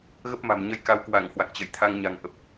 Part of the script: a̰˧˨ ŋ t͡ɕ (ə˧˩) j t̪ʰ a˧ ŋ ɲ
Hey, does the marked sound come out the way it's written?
yes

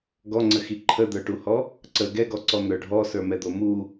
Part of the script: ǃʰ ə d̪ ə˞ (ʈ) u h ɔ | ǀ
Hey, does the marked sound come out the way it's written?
yes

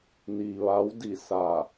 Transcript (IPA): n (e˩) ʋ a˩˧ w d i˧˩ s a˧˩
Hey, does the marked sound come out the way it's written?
no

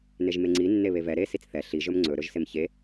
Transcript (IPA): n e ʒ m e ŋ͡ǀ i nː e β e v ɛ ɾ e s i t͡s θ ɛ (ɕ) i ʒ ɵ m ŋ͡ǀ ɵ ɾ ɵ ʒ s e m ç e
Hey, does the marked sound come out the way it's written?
no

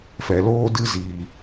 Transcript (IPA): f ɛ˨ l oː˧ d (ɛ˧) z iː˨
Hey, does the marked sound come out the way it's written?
no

